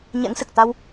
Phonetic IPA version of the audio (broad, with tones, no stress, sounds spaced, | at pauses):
ɲ ɛ̰˧˥ ŋ s ɨ˨˩ k̚ t̪ a˧ w